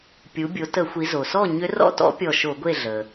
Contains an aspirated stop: no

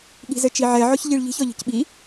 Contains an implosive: yes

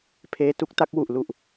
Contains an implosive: no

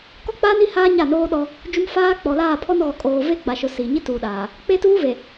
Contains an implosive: yes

